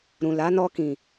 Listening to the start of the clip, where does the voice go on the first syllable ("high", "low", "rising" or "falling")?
low